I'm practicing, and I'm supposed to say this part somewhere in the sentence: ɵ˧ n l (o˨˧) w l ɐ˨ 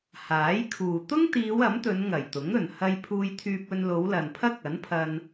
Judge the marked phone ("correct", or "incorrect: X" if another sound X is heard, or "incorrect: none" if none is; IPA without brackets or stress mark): correct